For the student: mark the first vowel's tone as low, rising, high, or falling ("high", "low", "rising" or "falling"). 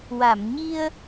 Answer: low